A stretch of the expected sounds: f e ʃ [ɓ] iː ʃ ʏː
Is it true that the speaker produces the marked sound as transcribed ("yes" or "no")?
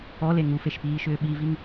no